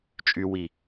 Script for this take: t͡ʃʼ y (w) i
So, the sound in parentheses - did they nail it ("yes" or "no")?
yes